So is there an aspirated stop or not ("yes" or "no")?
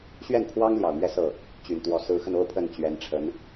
yes